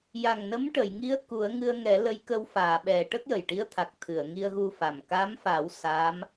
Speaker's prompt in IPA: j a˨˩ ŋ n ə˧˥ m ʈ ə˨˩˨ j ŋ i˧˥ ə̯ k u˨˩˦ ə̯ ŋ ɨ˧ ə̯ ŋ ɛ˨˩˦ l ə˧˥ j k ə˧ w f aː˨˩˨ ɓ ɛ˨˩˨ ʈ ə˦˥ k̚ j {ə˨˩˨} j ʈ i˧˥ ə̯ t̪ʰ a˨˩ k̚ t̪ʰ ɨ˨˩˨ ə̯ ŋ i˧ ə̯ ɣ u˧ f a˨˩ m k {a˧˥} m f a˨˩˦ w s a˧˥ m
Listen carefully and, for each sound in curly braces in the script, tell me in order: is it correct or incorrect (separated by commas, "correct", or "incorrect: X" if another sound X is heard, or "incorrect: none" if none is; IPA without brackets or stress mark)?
incorrect: ə˨˩, correct